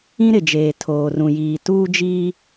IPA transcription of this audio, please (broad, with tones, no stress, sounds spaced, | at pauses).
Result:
ĩ˦ ɾ ɪ˨ d͡ʒ eː˨ tʰ oː˨ r ũ˨ j iː˨ t uː˦ d͡ʒ iː˦